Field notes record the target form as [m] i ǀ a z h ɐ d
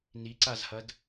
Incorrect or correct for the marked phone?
incorrect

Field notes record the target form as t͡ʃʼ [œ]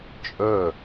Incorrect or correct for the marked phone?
correct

